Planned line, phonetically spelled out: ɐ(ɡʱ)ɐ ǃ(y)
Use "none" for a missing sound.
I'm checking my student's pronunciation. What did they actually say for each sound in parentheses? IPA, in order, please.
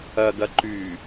ɡ, y

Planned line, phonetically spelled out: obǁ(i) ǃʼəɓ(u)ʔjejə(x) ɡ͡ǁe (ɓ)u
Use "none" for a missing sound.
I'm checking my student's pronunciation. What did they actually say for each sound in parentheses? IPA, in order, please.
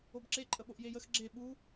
e, o, x, ɓ

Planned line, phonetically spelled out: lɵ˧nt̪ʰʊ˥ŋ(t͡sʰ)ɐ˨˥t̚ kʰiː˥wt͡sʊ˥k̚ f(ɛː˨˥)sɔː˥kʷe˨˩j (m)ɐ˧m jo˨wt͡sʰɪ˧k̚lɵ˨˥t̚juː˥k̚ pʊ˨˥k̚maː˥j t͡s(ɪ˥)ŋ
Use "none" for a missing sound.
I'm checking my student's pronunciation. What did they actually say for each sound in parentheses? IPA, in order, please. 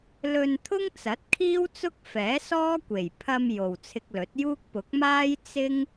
t͡s, ɛː˨˥, pʰ, ɪ˥

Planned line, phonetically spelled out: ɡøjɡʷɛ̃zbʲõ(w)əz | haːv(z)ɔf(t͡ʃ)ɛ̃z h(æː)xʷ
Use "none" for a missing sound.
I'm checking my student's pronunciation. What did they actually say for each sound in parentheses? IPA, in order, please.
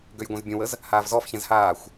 w, z, ç, aː

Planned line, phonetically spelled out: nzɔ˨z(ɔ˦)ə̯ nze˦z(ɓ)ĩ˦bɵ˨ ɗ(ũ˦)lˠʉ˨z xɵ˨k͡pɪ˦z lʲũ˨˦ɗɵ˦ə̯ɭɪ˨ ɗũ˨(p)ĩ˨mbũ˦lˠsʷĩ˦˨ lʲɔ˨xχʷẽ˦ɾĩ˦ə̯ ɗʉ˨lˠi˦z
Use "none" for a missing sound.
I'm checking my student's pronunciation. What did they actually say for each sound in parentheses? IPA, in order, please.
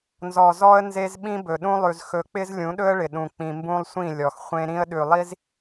ɔ˦, ɓ, ũ˦, k͡p

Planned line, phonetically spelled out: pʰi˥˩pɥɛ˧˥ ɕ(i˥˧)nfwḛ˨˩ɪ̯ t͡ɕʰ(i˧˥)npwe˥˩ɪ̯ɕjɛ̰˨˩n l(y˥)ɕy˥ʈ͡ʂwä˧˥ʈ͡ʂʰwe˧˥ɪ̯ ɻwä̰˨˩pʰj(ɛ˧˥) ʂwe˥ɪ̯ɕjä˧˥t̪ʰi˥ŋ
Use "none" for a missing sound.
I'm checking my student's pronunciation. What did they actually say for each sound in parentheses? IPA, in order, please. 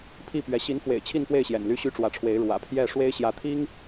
i˧˥, i˥˧, y˥, ɛ˥˩

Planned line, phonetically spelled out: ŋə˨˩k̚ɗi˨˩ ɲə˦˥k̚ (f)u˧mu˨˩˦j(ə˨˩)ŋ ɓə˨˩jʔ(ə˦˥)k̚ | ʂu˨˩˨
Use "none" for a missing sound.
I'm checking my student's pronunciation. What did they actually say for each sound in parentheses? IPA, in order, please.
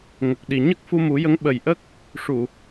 f, ə˧˥, ə˦˥

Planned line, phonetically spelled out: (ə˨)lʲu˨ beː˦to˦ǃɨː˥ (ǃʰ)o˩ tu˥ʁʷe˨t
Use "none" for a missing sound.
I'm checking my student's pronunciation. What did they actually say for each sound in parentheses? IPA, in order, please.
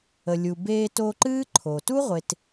ə˨, ǃʰ

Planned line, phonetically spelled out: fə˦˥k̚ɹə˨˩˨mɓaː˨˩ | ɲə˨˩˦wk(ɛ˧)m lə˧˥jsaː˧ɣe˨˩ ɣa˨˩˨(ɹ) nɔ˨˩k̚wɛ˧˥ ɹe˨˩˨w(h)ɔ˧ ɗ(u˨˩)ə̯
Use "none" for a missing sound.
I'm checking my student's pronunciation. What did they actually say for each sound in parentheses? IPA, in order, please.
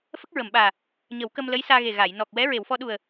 ə˧, j, f, u˨˩

